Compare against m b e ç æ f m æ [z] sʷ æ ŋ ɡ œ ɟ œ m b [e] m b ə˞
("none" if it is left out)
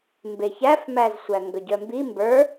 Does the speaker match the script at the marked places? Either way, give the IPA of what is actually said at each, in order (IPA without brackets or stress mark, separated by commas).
z, i